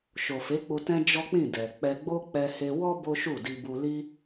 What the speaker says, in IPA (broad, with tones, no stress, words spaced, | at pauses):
ʃo˨fe˨˦k͡pu˧ tɛ̃˦d͡ʒɔ˦k͡pĩ˦˨dɛ˨ k͡pɛ˧ɡ͡bo˦ k͡pɛ˧he˧wɔ˦ bo˦ʃu˦˨ di˧bu˧li˦